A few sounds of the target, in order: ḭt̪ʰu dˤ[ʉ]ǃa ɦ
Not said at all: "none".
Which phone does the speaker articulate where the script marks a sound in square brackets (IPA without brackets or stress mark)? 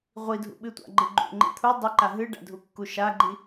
u